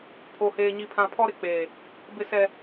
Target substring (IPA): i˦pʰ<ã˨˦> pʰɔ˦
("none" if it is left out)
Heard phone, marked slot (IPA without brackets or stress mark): ã˦